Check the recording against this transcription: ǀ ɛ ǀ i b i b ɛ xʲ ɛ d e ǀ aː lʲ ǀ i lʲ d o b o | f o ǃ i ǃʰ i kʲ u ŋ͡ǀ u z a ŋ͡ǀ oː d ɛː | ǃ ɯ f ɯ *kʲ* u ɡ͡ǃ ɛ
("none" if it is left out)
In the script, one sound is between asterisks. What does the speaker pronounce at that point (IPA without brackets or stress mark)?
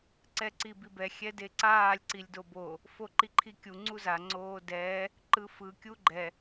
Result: kʲ